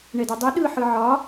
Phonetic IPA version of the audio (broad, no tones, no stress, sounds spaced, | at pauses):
ɳ ɛ d ɛ dˤ i ɗ ɯ ħ ɯ ʕ ɒ